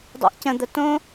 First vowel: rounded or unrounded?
unrounded